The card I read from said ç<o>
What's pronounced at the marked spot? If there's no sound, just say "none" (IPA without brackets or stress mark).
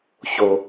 o